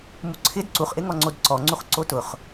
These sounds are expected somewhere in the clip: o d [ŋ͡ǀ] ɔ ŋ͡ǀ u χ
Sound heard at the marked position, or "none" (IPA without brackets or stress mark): ǀ